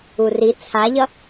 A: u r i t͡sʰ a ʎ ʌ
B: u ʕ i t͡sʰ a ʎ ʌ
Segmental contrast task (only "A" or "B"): A